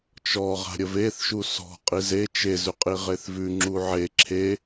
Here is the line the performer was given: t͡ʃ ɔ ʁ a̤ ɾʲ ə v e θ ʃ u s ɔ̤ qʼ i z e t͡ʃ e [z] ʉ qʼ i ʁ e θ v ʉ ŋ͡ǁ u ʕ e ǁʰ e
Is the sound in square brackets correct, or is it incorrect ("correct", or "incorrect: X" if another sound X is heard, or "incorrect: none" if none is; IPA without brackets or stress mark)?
correct